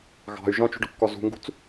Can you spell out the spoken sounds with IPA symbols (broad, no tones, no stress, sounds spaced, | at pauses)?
ɣ ɑ̤ y̯ ʒ ɔ̃ t͡ʃ ṳ ɖ ʊ kː ɔ z ṳ ŋ ɡ ṳ t͡s